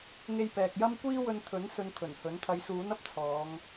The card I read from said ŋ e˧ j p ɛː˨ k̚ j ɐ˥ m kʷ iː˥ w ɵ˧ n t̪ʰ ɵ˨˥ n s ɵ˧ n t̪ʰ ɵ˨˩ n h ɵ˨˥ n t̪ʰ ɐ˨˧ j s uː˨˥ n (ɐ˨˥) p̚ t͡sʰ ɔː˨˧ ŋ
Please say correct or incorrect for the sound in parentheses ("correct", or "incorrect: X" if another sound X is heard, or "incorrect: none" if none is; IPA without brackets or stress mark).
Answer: incorrect: ɐ˧